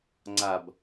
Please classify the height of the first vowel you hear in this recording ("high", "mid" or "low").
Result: low